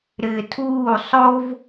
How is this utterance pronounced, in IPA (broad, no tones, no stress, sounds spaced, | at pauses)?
ɾ ɪː tʰ uː sˤ o v